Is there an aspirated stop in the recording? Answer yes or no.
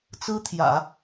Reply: yes